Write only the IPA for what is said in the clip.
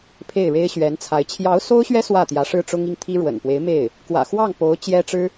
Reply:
pʰ e˥˩ ɪ̯ ɻ e˥ ɪ̯ ɕ ɥ ɛ˧˥ n t͡sʰ a˧˥ ɪ̯ t͡ɕʰ j ɑ˧˥ ʊ̯ s o˥ ʊ̯ ɕ ɥ ɛ˥ s w ä˥˩ t̪ j ä˧˥ ʂ ɻ̩˥ ʈ͡ʂ ʊ˥ ŋ i˥˩ ŋ t̪ʰ i˥ ɻ w ə̰˨˩ n p w e˧˥ ɪ̯ m e˥˩ ɪ̯ | k w ä̰˨˩ x w ɑ˥˩ ŋ p o˧˥ ʊ̯ t͡ɕ j ɛ˥ ʈ͡ʂ ɻ̩˥

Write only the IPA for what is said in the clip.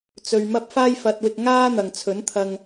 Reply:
t͡s ɵ˧ ɥ m ɐ˥ p̚ f aː˥ j f ɐ˧ t̚ w ɪ˧ k̚ ŋ aː˥ n̪ ɐ˨ ŋ t͡sʰ ɵ˨˥ n t̪ʰ ɐ˧ ŋ

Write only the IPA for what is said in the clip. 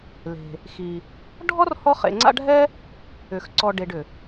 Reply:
l e̤˩ | x i˩ | ɖʱ ɔ˥ r h ɔ˦ χ ḛ˨ ŋ͡ǀ a̰˦ ɖʱ ɛ˥ | ʏ˩ x ǀ ɔ˨ ɖ e˨ ɖ ʏ˩

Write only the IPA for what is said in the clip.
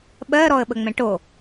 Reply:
ɓ ɜ ɾ ɔ ə̯ ɓ ə ŋ͡m ɛ̃ ʈ o

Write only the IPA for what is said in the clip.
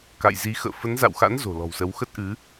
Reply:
k a̰˧˨ j z i˨˦ x ə̰ː˧˨ f ə˨˦ n z a̰˧˨ w x a̰˧˥ n z o̤˨˩ l ɔ̤˨˩ w s ə˨˦ w x ə˦˥ t̚ ʔ ɨ˨˦

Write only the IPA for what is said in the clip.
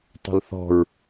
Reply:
tˤ ə̤ l θ ɔ̤ ɹ

